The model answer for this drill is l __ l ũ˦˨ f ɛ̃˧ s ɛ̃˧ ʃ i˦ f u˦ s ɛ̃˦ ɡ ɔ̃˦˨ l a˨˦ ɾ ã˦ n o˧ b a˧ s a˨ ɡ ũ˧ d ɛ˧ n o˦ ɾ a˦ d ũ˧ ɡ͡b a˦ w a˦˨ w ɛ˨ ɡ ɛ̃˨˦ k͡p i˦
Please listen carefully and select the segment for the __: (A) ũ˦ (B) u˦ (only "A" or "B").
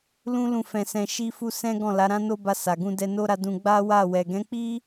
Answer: A